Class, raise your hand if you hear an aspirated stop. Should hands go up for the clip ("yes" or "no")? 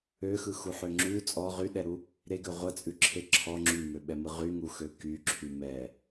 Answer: yes